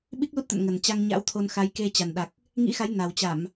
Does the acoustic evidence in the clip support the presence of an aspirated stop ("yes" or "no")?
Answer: yes